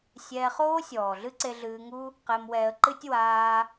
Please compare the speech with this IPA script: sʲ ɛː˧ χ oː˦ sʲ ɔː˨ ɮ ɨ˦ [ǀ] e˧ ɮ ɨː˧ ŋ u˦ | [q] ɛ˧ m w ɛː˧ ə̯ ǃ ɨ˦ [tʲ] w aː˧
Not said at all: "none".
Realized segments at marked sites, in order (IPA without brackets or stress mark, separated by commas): ǀ, q, tʲ